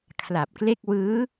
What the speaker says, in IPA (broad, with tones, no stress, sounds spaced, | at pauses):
kʰ l a˨˩ p̚ k l e˥˩ k̚ w ɯː˦˥